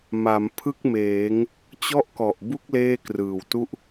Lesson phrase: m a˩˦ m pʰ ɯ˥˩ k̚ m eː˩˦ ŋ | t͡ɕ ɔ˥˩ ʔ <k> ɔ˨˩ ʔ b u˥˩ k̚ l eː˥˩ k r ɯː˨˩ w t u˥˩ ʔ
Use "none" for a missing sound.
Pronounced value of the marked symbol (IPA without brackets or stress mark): k